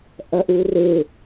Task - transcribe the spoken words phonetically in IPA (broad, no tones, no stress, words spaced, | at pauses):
ʔɐʔurɪ